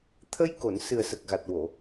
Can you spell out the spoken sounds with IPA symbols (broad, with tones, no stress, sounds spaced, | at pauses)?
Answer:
t̪ʰ ə˧ j k o˨˩˨ n s ɨ˨˩ ə̯ s ə˨˩ k̚ ɣ a˨˩ t̚ w o˨˩˨